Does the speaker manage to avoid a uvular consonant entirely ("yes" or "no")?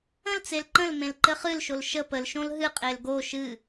no